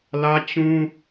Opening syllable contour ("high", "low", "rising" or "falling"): high